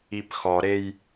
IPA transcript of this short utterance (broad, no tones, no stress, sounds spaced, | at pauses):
i p x ɔ ɾ e j